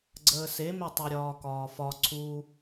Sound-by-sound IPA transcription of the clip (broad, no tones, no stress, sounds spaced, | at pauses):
ɡ͡ǀ əː s e m e tˤ o ɾʲ ɒː k ɒː f ɒ ǀʰ u